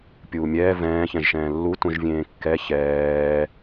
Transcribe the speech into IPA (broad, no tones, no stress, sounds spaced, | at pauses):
pʲ uː mʲ ɛː v ɛ̃ː ç ɛ̃ ʒ ʃ ɛ̃ː lː u t ũ ʒ vʲ ẽː kː ɛ ç ɛː